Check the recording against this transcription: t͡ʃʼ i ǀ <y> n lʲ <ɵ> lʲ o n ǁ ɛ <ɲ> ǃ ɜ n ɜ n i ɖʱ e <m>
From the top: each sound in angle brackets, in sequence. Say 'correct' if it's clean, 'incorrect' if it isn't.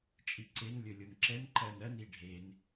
incorrect: e, correct, incorrect: n, incorrect: n

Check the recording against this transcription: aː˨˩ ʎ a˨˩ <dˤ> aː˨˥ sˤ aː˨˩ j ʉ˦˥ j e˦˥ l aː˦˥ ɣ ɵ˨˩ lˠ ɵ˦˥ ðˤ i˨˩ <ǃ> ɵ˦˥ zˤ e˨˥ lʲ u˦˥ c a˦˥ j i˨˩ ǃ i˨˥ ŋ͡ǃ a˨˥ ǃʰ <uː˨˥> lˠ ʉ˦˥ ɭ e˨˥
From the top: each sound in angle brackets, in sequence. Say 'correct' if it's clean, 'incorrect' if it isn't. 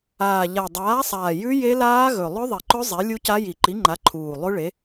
correct, correct, incorrect: uː˨˩

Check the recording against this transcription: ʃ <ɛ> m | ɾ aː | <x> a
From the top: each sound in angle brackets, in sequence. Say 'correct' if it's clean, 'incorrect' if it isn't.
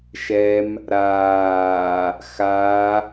correct, correct

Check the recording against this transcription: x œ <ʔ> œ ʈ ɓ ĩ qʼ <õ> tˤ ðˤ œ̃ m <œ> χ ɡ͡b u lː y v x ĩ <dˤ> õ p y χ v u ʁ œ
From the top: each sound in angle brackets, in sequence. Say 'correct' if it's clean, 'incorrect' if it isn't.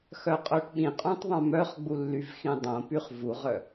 incorrect: qʼ, incorrect: ũ, correct, correct

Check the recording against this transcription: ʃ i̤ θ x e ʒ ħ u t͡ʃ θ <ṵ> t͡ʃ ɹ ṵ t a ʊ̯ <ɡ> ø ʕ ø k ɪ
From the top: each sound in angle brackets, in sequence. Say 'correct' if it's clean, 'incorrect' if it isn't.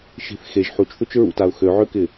incorrect: u, incorrect: x

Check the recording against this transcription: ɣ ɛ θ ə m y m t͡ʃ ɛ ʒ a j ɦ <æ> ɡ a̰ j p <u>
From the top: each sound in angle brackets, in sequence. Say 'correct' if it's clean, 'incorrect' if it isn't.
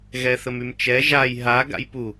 incorrect: a, correct

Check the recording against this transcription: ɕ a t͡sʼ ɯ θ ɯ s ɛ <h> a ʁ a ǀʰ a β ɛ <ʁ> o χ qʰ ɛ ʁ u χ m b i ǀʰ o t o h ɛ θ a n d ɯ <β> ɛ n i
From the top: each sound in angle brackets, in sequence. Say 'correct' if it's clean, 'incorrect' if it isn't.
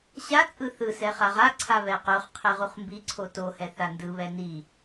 incorrect: χ, incorrect: q, correct

